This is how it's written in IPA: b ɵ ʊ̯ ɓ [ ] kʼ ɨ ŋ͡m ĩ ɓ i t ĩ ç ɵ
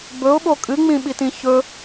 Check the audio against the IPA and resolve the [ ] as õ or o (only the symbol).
o